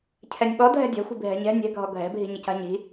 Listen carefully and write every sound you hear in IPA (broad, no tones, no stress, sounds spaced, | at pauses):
cʰ ɛ nʲ ɓ ɔ dʱ ɛ̤ dʲ a̤ xʷ i̤ bʱ ɛ̤ ɲ ɛ̤ nʲ ɛ̤ ɡʱ ɔ ɡʱ ɛ̤ bʱ i̤ ɲ i c a̤ ɲ i̤